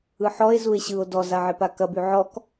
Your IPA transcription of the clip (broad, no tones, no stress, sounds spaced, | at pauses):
ɯ ħ ɔ e̯ z u e̯ ɕ ɯ o̯ d ɔ z a ʕ e p a k ɐ b y ʕ ɔ k